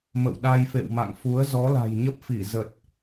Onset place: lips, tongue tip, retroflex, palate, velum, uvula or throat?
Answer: lips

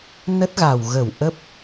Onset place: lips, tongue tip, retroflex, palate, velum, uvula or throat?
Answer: tongue tip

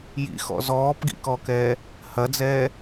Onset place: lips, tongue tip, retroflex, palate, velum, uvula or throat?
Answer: palate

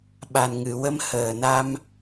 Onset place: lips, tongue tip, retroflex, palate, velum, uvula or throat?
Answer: lips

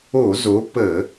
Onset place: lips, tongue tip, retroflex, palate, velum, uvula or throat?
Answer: tongue tip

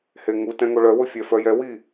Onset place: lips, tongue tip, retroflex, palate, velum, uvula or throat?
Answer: throat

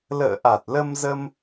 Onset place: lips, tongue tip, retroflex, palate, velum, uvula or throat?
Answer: tongue tip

